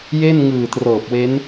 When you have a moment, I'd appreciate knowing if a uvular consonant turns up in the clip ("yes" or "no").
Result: no